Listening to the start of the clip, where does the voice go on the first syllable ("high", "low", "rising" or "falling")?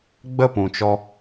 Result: falling